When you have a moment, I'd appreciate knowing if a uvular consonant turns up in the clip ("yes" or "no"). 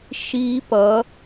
no